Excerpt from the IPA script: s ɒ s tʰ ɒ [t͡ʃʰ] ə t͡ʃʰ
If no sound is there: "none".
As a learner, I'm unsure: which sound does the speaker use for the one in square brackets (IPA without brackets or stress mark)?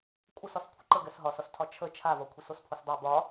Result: t͡ʃʰ